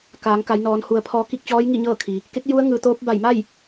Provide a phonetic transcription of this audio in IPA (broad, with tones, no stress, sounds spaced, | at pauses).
k aː˩˧ ŋ k a˩˧ j n ɔː˩˧ n h u˩˧ ə̯ pʰ ɔː˧ k i˥˨ k̚ t͡ɕ ɔː˧˥ j ŋ i˥˨ ɲ ɤː˥˨ kʰ i˩ | k e˧˥ k̚ j u˧˥ ə̯ ŋ ɯː˩˧ t̪ oː˧˥ p̚ b a˧˩ j m a˥˨ j